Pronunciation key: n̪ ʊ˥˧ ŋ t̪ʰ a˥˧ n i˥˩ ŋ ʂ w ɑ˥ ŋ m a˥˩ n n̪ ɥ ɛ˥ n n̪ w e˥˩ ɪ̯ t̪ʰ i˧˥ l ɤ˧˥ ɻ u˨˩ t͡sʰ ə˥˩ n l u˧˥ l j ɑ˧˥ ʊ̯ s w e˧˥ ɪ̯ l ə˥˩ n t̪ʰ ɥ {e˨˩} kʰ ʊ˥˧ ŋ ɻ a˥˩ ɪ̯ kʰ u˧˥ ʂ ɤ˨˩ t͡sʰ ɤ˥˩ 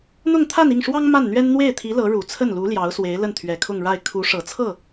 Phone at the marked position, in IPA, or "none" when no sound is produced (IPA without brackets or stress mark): ɛ˨˩